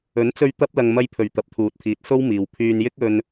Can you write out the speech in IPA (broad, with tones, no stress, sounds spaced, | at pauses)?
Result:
ɵ˨˥ n t͡s ɵ˧ ɥ t̪ ɐ˥ p̚ l ɐ˧ ŋ m ɐ˧ j pʰ ɵ˨˩ ɥ t̪ ɐ˨˥ p̚ t̪ʰ uː˨˥ t̚ t̪ʰ iː˨ t̚ s o˥ w m iː˨ w pʰ yː˧ n j ɪ˥ k̚ ɵ˧ n